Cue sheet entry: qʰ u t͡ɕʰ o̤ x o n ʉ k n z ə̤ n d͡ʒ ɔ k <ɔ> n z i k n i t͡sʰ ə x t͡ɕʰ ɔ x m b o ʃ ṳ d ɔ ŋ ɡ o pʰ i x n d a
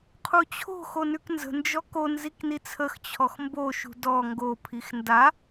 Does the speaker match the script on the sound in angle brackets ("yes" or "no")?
no